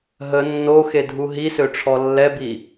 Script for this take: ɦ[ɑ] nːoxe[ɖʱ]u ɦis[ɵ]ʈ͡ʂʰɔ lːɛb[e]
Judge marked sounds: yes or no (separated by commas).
no, no, no, no